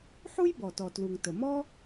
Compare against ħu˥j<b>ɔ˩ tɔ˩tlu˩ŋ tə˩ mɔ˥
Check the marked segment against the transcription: correct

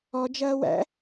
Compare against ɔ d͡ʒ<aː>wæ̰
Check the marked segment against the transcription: incorrect: ɐː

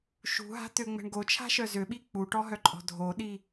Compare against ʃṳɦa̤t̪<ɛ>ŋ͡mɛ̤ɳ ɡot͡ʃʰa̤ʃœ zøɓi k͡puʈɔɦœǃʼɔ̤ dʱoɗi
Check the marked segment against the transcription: incorrect: ø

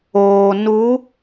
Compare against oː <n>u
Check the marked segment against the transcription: correct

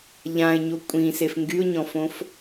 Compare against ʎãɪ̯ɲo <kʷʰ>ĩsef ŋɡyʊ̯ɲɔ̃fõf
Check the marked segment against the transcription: incorrect: kʷʼ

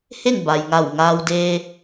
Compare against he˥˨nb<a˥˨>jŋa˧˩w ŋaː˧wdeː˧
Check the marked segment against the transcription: incorrect: a˩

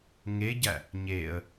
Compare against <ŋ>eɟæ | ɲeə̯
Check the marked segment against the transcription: correct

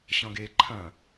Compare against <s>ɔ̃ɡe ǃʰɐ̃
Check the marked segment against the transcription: incorrect: ɕ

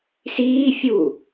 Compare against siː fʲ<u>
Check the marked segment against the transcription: correct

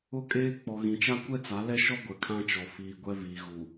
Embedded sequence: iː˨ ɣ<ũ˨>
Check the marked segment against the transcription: incorrect: u˨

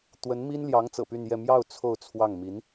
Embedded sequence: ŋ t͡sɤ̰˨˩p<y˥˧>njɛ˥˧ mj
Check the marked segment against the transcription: correct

